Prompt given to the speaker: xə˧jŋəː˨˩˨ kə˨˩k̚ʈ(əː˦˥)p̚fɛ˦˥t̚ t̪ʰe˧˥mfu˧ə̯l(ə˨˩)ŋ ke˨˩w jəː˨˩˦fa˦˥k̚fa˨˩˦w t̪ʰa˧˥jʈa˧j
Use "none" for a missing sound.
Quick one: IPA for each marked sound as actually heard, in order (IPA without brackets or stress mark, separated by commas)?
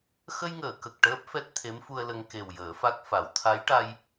əː˦˥, ə˧